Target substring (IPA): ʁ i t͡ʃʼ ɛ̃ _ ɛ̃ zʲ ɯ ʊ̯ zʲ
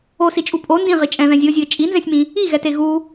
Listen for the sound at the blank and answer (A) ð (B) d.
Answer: A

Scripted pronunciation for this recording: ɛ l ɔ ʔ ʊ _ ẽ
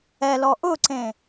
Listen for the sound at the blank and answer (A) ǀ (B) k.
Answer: A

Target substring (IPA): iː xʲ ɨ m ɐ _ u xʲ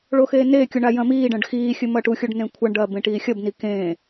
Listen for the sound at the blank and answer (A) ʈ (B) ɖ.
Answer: A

